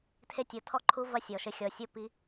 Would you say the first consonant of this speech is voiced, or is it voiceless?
voiceless